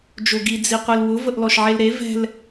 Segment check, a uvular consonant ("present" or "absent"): present